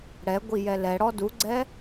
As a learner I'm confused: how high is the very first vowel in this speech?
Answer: mid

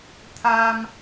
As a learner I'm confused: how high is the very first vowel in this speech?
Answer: low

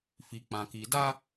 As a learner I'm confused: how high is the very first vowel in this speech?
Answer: high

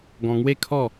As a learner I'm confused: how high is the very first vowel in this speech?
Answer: mid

